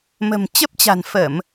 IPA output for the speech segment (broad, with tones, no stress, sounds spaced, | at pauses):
m ə̤˨˩ m t͡ɕ ə˦˥ p̚ t͡ɕ a̤˨˩ n f ə˧˩˨ m